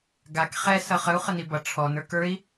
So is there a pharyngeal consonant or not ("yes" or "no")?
no